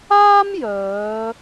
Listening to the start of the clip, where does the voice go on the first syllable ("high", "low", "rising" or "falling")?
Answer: high